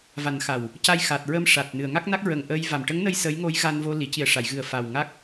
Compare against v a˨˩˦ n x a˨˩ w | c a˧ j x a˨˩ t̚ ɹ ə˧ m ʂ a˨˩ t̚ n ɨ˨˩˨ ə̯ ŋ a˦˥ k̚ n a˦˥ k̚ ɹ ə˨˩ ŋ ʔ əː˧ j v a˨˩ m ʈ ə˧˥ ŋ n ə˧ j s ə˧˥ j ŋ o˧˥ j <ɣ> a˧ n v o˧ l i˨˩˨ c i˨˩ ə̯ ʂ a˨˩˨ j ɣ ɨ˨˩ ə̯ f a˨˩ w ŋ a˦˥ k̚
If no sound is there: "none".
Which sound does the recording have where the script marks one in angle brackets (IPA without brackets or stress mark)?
ɣ